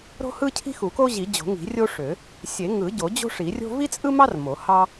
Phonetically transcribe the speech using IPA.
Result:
ɾ o̤˥ h ɯ˥ cʰ i̤˥ x u˨˩˦ k o˥ ʑ i˨˩˦ d͡ʑ o̤˨˩˦ ŋ i̤˨˩˦ rʲ o˥ ʂ ø˨˩˦ | sʲ e˨˩˦ ŋ ɯ˨˩˦ ɟ o˨˩˦ d͡ʑ o̤˥ ʂ i˨˩˦ rʲ o̤˥ v i˥ t͡sʼ ɯ˥ m ɑ˥ r m o˨˩˦ h ɑ˥

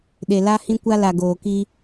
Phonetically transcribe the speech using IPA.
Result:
ɗ e˨ l a˦ h ĩ˦ kʷ a˦ l a˨ ɡ oː˨ k i˦

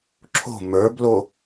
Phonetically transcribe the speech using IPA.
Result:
ǁʰ o̤ m ə˞ b l o

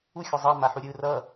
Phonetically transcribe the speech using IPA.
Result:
u xʲ ʌ zˤ ʌ m a ħ u ɾʲ ɯ r ʌ

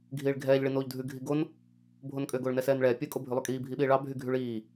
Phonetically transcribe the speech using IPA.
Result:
ɡʱ iː ɭ ɡʱ ɛː ʎ ɭ i n oː ʎ dʱ ʉ ɡʱ i ɡ o n | bʱ o n kʼ ø ɡ oː ɭ n ɛ s ɛː n ɭ ɛː pʲ ɵ kʼ o bʱ ʉ lˠ y kʼ iː bʱ i ɓ iː ɭ ɑ bʱ y ɡʱ y ɭ iː

